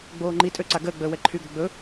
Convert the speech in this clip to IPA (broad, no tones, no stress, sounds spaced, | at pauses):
ɡ͡b oː ŋ͡ǃ i tʼ ø ǀ a ɡ əː ɡ͡b əː w ɛ ǃʰ y ɡ o ɡ͡b ɵ